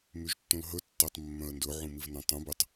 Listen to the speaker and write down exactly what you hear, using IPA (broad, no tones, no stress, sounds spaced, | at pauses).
m y ʒ tː ũ l ɦ ɵ tː æ tˤ mː œ̃ ə̯ n d ɵ ʕ ũ m i v n œ̃ tˤ ũ b ʉ tˤ